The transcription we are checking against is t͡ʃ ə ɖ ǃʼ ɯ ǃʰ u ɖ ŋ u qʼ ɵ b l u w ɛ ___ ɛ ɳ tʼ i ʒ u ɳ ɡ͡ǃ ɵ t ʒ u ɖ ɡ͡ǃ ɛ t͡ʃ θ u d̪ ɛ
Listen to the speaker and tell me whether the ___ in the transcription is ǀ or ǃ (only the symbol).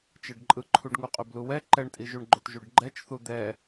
ǃ